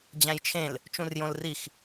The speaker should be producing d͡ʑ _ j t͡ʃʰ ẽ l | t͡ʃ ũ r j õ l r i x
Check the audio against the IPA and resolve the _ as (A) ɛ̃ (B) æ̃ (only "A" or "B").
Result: B